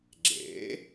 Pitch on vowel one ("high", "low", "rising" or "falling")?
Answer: rising